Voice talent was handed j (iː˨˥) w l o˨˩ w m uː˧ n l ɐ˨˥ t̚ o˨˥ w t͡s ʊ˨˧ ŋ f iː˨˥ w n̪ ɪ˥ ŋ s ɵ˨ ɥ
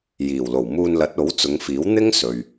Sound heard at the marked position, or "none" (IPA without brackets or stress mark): iː˨˩